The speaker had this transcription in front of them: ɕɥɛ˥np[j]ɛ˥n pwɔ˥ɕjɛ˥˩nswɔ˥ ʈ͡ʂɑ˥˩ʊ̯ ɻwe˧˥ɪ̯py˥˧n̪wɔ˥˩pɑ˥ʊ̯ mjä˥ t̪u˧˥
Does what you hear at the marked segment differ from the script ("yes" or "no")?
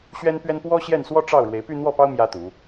yes